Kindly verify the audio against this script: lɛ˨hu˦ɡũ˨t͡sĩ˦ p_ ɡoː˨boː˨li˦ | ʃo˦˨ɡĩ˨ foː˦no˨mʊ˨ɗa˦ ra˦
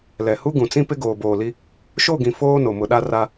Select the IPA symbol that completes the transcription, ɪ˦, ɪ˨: ɪ˦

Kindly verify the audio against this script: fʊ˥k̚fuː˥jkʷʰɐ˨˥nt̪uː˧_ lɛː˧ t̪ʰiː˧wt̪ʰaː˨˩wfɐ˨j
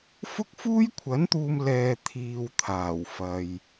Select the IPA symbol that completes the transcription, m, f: m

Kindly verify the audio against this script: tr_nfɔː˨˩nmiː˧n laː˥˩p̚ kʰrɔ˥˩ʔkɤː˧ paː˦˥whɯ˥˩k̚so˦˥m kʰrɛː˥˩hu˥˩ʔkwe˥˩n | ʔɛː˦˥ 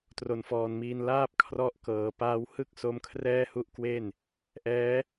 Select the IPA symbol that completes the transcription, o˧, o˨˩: o˨˩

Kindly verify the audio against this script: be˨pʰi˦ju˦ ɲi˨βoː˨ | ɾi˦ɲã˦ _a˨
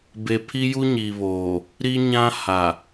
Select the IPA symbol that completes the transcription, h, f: h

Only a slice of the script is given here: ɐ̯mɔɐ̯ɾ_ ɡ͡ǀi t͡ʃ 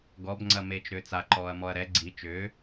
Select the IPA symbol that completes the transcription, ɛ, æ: ɛ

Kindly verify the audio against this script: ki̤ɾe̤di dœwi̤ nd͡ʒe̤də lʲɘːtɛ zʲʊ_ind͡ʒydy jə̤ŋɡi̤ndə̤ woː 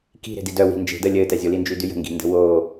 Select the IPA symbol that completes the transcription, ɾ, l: l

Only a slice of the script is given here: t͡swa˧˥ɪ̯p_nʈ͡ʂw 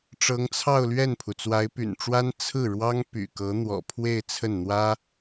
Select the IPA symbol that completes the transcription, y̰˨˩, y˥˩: y̰˨˩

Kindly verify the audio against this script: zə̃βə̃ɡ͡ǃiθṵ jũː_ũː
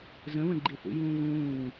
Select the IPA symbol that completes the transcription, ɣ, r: ɣ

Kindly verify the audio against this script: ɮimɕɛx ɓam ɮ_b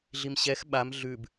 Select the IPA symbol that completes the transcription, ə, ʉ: ʉ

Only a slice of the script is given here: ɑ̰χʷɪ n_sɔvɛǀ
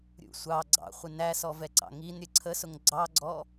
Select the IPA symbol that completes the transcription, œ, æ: æ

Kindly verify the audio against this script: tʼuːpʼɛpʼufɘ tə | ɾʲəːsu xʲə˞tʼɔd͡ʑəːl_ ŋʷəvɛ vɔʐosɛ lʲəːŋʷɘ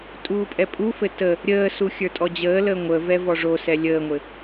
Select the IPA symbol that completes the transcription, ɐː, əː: əː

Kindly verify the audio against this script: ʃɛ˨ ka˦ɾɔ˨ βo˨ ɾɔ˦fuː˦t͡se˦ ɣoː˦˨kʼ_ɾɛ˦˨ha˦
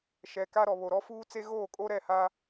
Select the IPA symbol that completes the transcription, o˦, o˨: o˦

